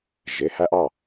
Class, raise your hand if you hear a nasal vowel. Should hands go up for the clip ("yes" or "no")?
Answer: no